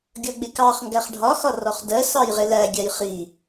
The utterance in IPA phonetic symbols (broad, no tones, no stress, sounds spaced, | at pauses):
ɡʲ ʌ ɡ͡b ɪ k ɑ χ ŋ ɡ æ χ ɖʱ ɒ x ɒ r ɔ χ d ɜ s ɑ j ʁ ɪ l æ ɡʲ æ j χ i